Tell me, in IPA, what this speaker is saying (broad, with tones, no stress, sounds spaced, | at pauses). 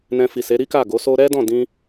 n ɛ̃˧ f i˨ s e˨˦ ɾ i˦ k a˦˨ ɡ o˨˦ s o˦ ɾ ɛ˦ d ɔ̃˦˨ d ĩ˧